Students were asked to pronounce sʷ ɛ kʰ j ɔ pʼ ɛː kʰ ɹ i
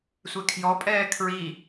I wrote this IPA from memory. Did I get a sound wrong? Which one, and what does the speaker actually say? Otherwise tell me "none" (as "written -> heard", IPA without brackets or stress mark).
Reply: none